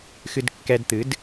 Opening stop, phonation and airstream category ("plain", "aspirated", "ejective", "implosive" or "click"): plain